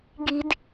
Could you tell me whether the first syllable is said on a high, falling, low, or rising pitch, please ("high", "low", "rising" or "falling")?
high